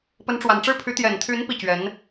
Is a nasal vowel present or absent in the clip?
absent